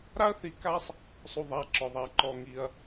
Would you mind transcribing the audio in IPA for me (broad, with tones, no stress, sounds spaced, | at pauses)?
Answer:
ɾ a˥ ɐ̯ θ i˧ k a˥ sˤ | sˤ u˥ ðˤ a˧˥˧ ǁ ɔ˧ ðˤ a˥ ǃ ɔ˧ ŋ i˧ ɐ̯